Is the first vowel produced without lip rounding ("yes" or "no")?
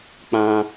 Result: yes